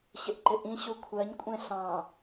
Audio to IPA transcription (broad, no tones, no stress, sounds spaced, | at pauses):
ɕ ɪ ʔ ǃ ɪ ʔ ĩ ɕ u kʷʰ ɜ ɲ kʷʼ ɛ̃ ɬ ɑ̃